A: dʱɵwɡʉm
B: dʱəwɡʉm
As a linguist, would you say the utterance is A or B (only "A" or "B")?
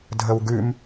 B